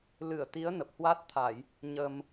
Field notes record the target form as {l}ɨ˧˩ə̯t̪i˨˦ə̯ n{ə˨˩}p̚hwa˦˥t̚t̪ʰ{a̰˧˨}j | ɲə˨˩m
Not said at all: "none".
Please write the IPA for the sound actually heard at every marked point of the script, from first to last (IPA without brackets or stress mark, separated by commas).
l, ə˨˩, a˧˩˨